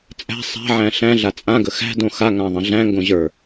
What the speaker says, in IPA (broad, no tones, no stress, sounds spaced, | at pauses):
t͡sʼ æ̤ sˤ æ̤ ʕ æ̃ ɬ æ̃ ɮ a t͡sʼ ã ɡ ə x æ̤ d õ x a ŋ ã ðˤ ə̃ ɮ æ̃ ŋ ɡ õ ʑ ə˞